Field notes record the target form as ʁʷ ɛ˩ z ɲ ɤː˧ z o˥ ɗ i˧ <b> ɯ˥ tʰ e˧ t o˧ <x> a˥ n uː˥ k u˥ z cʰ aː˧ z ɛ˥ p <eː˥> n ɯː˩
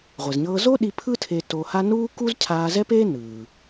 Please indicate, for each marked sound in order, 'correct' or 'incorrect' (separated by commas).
incorrect, incorrect, correct